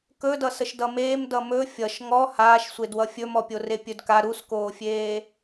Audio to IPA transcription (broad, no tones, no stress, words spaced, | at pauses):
kɵdʌ səʃdʌmeːm dʌmɵ fʲʌʃ ŋɔ haːʃsʷedwʌ fʲɵmɔpʲore pʲɵdka ɾuskoːfʲeː